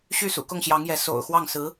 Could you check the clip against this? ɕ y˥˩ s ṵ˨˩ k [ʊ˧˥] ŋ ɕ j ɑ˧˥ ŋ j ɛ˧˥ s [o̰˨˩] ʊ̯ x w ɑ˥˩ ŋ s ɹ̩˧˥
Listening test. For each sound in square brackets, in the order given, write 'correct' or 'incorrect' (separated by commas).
incorrect, correct